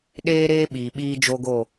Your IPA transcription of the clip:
ɗeː˦ɾeː˦ ɓiː˨ɓiː˦d͡ʒo˦ɡo˦˨

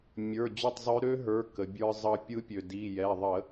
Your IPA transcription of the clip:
mʲə˞˩˧˩ d͡ʑø˥˨tˤzˤø˦˥ ɾø˦˥ɦə˞˩˧˩ kə˩bʲə˞˧zˤʌ˧pʲɯ˦˥ pʲø˩di˩˧˩jɛ˩˧˩ ðˤə˧˩˧

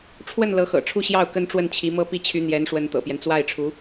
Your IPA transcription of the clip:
ʈ͡ʂʰwə˥˩n lɤ˧˥xɤ̰˨˩ʈ͡ʂʰu˥˧ ɕjɑ˥˩ʊ̯ kə˥nʈ͡ʂwə˥˩nt͡ɕʰi˧˥mɤ˥ pi˥˩t͡ɕʰy˧˥n̪jɛ˧˥nʂwə˧˥n t̪ɤ̰˨˩pjɛ˦n t͡swa˥˩ɪ̯ʈ͡ʂʰu˧˥

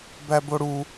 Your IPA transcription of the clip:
bæboɽu

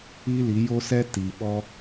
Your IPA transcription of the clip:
i˦ li˨˦jo˦sɛ˦ ti˨ ɓɔ˦

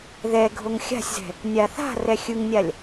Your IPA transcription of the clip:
ðɛ ɡʱoŋxʲa̤sʲzɛ̤ | nʲaθa̤rɛ xʲɯŋnʲalʲ

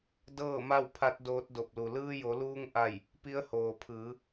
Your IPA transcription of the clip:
dɤː˥˨ma˥˨wpʰa˧˥t̚ doː˧˥t̚do˧˩p̚lu˩ lɯː˧jo˩˧luː˧ŋ ʔa˥˨j | pi˧˥ə̯hoː˩ pʰɯː˩˧

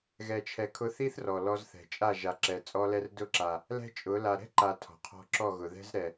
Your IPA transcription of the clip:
ɣɛ˧t͡ʃʰɛ˧ kʰʊ˧θi˦θrɔ˨ lɔ˧zθɛ̤˨t͡ʃʼa˦˨ ʒa˨ǁɛ˨ t͡sʼɔ˧lɛ˧rdʊ˦˨ǁa˨ | lɛ̤˦t͡ʃʼʊ˨˦ la˨ɾɛ̤˦ǃa˨ tʰɔ̤˨qʰɔ̤˧ǁɔ˦˨ɣʊ˨ ðɛ̤˦zɾɛ˨

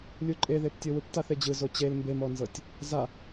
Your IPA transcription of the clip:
lʲuǃʼeðeptʲɤ wɯptaθed͡ʑɯ zot͡ɕel mbemɔnzɤtʲ | za

